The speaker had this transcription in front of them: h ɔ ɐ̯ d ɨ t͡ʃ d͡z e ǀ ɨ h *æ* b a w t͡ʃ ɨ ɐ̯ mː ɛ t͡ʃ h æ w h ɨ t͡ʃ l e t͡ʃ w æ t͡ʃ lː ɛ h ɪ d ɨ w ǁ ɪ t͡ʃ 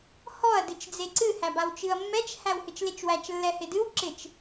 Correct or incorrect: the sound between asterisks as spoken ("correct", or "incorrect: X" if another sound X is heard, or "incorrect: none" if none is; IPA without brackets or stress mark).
correct